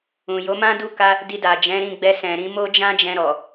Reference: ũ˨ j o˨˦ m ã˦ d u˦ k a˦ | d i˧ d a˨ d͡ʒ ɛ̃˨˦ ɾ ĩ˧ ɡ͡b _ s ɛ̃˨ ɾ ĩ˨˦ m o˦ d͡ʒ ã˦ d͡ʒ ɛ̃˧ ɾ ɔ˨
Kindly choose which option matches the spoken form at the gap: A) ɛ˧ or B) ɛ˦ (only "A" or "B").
A